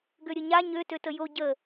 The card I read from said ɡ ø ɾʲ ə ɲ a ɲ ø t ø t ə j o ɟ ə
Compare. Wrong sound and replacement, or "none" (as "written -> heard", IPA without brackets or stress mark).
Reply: none